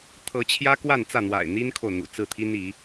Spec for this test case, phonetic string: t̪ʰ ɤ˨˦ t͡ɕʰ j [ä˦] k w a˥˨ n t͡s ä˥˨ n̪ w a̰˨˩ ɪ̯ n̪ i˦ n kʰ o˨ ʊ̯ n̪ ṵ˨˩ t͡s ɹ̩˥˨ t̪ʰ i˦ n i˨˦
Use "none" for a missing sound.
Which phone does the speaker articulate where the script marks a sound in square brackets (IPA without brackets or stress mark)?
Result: ä˦